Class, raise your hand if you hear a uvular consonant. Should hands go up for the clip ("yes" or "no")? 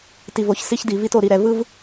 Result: no